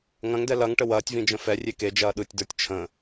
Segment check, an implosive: present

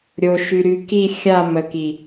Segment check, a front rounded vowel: present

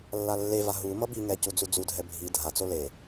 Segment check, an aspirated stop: absent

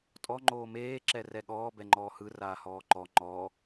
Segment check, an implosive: present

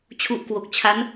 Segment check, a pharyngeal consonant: absent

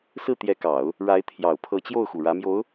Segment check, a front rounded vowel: absent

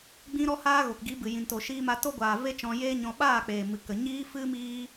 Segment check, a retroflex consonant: absent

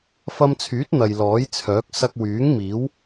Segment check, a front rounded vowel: present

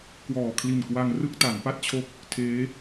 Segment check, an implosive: absent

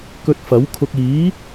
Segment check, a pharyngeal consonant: absent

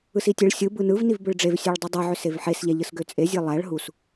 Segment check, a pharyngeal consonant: present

